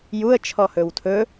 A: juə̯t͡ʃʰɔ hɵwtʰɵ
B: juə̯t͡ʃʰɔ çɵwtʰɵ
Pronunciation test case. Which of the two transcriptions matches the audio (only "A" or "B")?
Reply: A